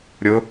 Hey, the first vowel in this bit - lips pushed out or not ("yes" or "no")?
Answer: yes